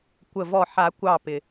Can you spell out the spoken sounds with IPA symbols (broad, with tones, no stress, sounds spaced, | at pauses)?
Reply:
kʷ ə˧˩ v ɔ˧˩ ħ a˨˩˦ kʷ ɑː˧˩ p ɪ˩